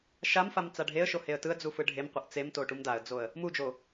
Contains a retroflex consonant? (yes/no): yes